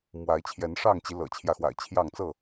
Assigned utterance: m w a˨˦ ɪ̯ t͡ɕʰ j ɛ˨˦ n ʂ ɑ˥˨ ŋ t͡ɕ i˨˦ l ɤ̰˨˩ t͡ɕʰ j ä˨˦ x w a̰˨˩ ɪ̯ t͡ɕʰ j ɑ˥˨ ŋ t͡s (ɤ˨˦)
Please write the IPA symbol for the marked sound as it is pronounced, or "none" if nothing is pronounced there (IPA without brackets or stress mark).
ɤ˥˨